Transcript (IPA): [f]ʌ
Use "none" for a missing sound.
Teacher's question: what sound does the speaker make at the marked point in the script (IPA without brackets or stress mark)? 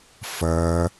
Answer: f